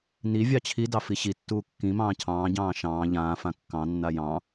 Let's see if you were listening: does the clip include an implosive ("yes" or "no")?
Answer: no